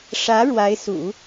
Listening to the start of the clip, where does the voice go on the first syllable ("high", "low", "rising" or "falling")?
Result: rising